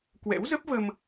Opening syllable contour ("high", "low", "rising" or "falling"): rising